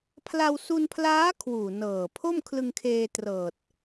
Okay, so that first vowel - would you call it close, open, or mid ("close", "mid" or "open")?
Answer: open